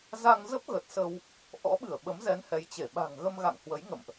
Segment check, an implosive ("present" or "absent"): present